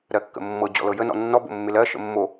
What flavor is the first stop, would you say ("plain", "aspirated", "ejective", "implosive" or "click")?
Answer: plain